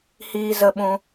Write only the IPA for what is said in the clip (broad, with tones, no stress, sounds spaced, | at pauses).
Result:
h iː˧ z ə˧ ɓ ũ˧